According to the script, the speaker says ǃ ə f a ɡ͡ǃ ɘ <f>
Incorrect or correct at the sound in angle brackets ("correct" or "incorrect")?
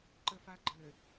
incorrect